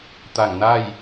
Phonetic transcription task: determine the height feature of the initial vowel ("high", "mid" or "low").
low